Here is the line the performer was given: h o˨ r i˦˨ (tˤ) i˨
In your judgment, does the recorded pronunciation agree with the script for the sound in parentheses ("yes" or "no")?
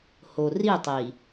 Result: yes